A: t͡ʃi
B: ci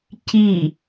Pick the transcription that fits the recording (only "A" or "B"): B